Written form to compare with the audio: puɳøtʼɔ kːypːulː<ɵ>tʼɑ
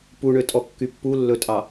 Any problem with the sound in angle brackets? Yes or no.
no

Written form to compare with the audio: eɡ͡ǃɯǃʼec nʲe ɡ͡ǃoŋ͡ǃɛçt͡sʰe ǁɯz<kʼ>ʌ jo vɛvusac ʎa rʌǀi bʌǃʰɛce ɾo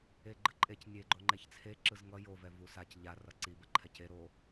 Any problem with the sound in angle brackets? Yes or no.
yes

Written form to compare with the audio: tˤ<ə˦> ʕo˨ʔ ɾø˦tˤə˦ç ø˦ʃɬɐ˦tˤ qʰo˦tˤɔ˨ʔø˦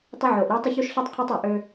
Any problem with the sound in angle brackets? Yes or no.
no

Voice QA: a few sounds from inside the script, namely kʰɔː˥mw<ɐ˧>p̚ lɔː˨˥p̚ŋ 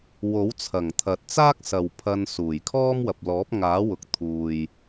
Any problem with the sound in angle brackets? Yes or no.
yes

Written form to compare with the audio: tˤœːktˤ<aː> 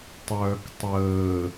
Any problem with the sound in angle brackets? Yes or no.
yes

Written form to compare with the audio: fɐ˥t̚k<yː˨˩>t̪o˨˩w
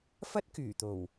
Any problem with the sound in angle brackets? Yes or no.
no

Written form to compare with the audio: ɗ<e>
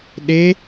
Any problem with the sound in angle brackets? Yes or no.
no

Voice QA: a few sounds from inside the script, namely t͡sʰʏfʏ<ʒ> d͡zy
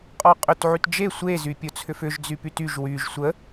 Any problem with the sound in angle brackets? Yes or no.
no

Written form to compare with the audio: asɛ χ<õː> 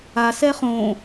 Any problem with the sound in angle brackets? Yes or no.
no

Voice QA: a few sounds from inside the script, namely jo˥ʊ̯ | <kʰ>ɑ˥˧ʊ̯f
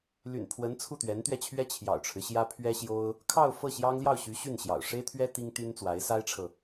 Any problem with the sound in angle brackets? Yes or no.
no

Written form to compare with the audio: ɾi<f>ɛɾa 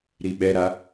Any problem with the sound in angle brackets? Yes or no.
yes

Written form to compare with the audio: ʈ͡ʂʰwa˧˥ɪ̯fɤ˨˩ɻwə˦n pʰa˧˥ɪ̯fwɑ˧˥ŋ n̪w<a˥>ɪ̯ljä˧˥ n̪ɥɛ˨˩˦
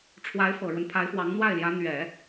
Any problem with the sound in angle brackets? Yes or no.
yes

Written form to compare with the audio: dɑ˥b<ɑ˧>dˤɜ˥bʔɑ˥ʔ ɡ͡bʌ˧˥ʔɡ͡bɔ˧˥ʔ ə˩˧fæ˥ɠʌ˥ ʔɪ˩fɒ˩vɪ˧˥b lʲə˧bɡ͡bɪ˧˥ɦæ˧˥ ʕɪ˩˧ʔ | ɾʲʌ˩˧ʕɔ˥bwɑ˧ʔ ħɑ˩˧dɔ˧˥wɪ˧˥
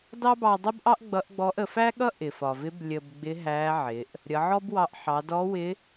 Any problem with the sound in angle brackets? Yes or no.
no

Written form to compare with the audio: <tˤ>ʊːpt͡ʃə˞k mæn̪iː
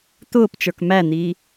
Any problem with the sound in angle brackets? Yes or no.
yes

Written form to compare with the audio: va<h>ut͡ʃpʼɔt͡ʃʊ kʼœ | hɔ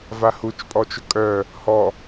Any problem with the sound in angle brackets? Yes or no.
no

